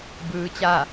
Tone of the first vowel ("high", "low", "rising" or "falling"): rising